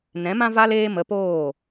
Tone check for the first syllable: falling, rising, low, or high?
rising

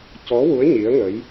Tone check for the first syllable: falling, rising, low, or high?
rising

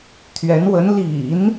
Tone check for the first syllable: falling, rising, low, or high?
rising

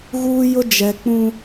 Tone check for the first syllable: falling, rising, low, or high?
high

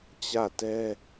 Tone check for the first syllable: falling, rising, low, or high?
falling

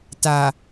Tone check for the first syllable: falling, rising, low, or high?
low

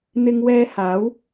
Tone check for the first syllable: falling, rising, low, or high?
high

